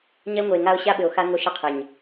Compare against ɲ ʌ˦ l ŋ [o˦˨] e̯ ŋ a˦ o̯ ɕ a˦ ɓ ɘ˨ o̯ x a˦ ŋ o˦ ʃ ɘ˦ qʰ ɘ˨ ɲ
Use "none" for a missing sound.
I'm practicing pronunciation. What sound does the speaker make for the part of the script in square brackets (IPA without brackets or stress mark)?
o˨